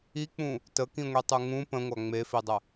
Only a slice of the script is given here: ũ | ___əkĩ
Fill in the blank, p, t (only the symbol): t